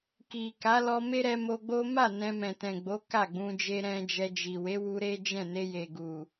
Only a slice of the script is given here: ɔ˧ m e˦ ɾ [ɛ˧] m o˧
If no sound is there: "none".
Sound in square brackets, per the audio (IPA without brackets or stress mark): ɛ˧